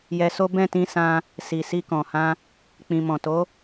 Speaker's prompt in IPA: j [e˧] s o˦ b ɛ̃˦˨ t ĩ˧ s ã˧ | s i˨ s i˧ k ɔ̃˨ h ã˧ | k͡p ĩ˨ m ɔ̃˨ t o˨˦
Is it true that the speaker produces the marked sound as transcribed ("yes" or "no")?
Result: no